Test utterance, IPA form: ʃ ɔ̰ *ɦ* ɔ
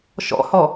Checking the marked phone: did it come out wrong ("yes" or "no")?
yes